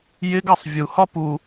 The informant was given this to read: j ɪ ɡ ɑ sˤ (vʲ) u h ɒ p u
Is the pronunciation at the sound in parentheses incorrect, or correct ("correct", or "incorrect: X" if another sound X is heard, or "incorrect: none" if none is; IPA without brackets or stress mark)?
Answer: correct